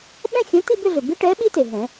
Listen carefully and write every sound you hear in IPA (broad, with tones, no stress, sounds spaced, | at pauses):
ɓ ɛ̃˥˧ xʲ õ˨˥ t i˥˧ b ʏ˥˧ ɮ ʏ˩ b i˦˥ ʈ ɛ˨˥ ɓ i˦˥ t e˩ ɦ ɛ̃˨˩˦